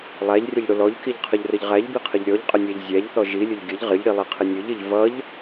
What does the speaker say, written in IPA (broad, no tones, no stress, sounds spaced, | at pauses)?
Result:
lˠ æ ʎ rʲ ə ʎ ɽ ʊ l ɔ ʎ k i ʎ qʰ ə ʎ r ə ʎ ʁ æ ʎ b i qʰ ə ʎ ɾʲ ɔ ʎ qʼ ə nʲ æ ʎ zʲ æ ʎ θ ɔ ʒ i lʲ ʊ ʎ ɡʲ ə ʎ ʁ ɪ ʎ ɽ i lˠ i qʰ ɪ nʲ ʊ ʎ ɪ ʎ v ʌ ʎ